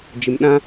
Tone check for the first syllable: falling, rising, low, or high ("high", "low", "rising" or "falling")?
low